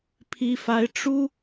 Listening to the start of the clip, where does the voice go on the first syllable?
high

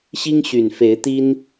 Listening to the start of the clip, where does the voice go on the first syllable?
high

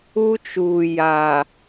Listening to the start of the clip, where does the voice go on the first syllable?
high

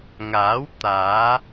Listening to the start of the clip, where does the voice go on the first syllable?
rising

